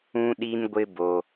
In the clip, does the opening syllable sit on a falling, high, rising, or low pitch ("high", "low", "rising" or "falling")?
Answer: high